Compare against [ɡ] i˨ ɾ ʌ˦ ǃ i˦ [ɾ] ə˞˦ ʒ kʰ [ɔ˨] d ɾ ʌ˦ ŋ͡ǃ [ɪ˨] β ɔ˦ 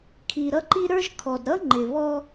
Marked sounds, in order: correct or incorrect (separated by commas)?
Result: incorrect, correct, correct, correct